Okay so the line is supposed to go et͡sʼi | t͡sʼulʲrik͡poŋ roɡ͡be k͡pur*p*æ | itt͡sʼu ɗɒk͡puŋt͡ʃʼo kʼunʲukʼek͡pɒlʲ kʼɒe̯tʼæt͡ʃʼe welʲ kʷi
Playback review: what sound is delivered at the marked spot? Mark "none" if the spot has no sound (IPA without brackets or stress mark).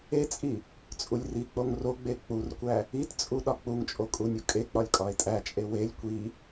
kʷ